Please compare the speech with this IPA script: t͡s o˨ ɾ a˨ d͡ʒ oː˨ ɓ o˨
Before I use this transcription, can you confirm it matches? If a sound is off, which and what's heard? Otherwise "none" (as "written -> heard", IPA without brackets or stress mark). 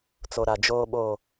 none